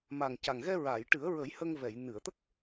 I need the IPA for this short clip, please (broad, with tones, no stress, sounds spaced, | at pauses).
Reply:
m a˨˩ ŋ c a˨˩ ŋ ɣ ɛ˧ ɹ a˨˩˨ j ʈ ɨ˨˩˦ ə̯ ɹ ə˨˩˦ j h ə˧ ŋ v ɛ˨˩˨ j n ɨ˨˩˨ ə̯ t̪ ə˦˥ k̚